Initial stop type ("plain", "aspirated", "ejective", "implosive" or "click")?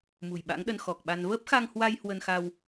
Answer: implosive